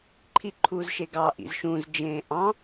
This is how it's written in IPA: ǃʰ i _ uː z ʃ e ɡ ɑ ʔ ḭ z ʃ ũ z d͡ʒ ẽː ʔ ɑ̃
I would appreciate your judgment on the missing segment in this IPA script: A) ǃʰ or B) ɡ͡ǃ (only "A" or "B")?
A